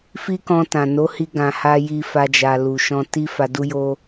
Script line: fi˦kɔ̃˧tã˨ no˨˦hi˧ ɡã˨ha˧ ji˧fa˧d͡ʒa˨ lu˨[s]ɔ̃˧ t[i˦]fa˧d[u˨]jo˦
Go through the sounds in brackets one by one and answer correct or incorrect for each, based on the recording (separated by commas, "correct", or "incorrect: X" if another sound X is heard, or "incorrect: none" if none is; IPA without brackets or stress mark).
incorrect: ʃ, correct, incorrect: u˦